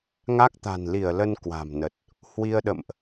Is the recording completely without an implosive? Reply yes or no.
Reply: no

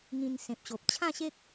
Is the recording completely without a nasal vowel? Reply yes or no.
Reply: no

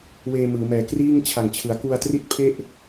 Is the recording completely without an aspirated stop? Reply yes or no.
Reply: no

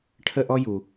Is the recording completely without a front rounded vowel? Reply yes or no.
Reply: yes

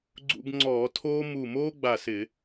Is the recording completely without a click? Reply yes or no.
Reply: no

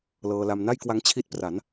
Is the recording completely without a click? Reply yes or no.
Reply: yes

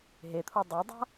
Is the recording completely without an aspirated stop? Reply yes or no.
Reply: no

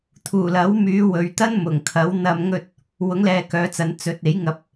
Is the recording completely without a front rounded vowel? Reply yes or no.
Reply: no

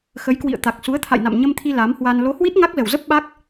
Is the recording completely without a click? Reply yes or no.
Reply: yes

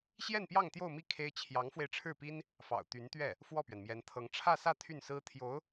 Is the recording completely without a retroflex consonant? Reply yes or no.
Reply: no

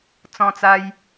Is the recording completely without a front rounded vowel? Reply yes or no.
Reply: yes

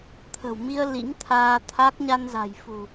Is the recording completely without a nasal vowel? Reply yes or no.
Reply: yes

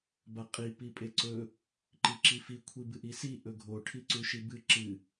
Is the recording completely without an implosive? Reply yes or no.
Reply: yes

